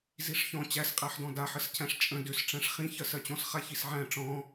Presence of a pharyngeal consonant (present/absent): present